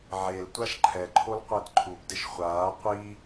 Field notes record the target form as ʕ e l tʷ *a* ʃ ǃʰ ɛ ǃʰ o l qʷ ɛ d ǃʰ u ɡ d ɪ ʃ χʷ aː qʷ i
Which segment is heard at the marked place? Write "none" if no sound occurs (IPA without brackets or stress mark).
a